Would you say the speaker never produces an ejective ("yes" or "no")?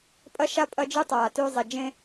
no